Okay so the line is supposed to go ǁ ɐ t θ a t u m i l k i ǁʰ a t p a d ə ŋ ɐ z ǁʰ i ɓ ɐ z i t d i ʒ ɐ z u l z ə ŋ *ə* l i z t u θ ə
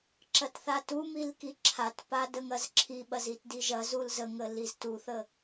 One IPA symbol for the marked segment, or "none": ə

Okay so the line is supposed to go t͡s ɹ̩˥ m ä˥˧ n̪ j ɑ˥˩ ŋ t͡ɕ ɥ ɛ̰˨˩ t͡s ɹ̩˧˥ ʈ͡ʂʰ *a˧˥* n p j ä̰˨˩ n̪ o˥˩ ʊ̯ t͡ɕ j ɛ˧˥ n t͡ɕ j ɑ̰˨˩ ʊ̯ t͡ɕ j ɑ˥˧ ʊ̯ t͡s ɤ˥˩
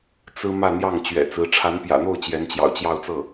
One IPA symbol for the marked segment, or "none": a˧˥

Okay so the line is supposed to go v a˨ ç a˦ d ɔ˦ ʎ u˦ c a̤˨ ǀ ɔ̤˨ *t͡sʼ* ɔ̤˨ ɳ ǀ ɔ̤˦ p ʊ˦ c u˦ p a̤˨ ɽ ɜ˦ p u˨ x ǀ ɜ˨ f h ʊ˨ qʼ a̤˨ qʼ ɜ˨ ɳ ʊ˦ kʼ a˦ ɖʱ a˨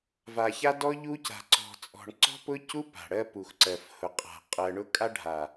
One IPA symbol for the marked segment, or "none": t͡sʼ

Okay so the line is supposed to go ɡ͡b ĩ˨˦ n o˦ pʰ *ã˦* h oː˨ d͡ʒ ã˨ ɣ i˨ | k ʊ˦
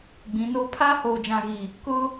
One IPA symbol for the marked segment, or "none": a˦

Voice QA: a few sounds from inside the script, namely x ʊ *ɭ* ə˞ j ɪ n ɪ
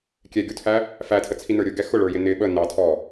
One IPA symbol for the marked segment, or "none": ɭ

